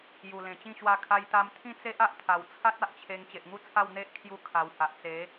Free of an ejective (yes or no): yes